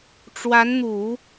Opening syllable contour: rising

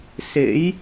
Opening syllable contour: rising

